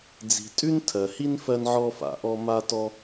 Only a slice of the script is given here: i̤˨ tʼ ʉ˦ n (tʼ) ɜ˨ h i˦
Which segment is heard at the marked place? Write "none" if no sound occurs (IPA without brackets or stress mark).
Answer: tʰ